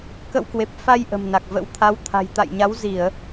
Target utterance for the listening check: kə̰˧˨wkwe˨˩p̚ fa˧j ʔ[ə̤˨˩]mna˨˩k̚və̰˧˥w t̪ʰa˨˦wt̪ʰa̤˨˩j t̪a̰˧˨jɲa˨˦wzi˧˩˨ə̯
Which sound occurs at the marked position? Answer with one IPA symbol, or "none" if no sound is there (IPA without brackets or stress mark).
ə̤˨˩